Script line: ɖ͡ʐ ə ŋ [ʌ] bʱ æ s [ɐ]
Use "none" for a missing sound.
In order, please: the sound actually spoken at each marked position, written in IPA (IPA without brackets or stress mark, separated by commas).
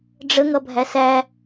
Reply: ʌ, æ